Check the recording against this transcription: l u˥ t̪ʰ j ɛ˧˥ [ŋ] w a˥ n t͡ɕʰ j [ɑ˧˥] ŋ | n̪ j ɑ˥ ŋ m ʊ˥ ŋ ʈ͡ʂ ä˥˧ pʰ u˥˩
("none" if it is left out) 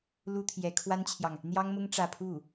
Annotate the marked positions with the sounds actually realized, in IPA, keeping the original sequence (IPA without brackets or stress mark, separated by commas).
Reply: kʰ, ɑ˨